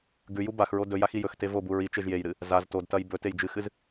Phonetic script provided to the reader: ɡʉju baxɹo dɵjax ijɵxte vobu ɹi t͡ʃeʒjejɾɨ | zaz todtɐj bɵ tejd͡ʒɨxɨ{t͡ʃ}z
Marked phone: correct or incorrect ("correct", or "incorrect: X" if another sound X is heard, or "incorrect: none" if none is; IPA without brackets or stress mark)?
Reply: incorrect: none